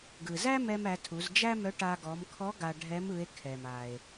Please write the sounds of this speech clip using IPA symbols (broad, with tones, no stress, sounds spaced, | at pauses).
ɡ ɯ˩ z æ˥ m ɛ˧ m æ˩˧ tʰ u˩˧ z d͡ʒ æ˥ m œ˧˥ ʈ a˧ ɡ ɔ˩˧ m kʰ ɔ˧˥ ɡ a˧ ɖʱ ɛ˧˥ m ɯ˩˧ e̯ kʰ ɛ˩ m a˩ e̯